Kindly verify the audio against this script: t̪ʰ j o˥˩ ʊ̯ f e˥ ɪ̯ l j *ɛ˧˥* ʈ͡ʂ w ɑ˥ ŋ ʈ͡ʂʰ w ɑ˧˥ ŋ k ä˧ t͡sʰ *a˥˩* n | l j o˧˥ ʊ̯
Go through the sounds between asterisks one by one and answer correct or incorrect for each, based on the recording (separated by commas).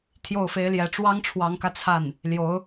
correct, correct